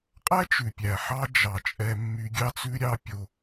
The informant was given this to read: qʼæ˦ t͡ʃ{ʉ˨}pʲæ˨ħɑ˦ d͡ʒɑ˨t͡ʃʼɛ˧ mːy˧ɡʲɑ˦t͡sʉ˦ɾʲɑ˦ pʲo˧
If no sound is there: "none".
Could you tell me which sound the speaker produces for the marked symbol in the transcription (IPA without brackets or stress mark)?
ʉ˨